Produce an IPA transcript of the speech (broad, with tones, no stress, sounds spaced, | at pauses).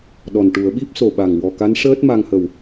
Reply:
ɗ ɔ˨˩ n ʈ u˨˩˦ ə̯ ɓ i˦˥ p̚ s o˨˩ ɓ a˨˩ ŋ w ɔ˨˩ k a˧˥ n ʂ əː˦˥ t̚ m a˧ ŋ h ə˨˩ w